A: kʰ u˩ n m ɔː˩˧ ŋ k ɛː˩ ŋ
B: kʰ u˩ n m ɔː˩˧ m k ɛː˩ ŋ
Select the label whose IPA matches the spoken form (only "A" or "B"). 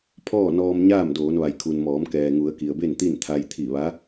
B